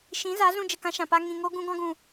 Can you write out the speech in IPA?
ʃ ĩ˨˦ z a˨˦ z ũ˧ d͡ʒ ə˨ k ã˦ ʃ ã˨ p a˦ ŋ ĩ˨ ŋ o˦ ɡ ũ˧ ɡ ɔ̃˧ ɡ ũ˨

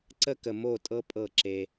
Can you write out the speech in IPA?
ǀ ə˦ k ə˨ m o˦˨ tʼ ɤ˦ pʼ ɤ˦˨ ǁ e˦

